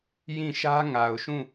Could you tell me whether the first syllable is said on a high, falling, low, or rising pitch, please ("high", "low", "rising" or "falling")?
falling